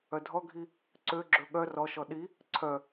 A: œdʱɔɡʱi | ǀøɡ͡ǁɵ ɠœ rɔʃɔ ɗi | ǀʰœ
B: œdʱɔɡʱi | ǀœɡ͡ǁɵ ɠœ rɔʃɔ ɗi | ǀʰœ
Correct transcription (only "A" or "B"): A